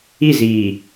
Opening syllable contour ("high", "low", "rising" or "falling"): falling